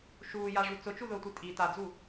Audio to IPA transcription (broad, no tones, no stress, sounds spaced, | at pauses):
ʃ uː j a ʐ u t͡s ʊ t͡ʃ u ð ʊː tʷ i tʼ i t a d͡z u